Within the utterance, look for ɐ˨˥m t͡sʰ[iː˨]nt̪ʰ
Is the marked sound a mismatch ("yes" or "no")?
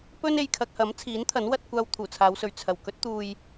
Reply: yes